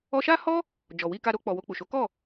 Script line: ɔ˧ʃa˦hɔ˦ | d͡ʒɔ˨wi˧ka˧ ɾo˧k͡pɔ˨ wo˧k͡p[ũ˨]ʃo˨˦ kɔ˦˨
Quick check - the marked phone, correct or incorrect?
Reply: incorrect